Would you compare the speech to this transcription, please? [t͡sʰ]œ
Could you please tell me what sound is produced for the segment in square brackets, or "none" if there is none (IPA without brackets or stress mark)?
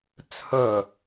t͡sʰ